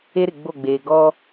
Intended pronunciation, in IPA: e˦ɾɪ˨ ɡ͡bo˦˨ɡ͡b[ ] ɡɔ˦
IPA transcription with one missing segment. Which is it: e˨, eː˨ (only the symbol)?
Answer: eː˨